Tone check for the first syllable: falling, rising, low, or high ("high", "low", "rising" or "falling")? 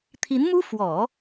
rising